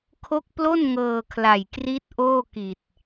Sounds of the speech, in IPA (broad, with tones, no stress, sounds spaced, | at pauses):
kʰ o˦˥ k̚ p l o˥˩ n ŋ ɤː˧ kʰ l a˨˩ j k r i˦˥ t̚ ʔ oː˥˩ k i˨˩ t̚